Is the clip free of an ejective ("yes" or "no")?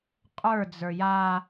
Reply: no